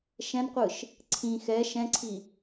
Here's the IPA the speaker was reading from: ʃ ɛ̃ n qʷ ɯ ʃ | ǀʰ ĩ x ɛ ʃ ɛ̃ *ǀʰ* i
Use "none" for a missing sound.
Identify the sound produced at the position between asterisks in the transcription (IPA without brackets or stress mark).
ǀʰ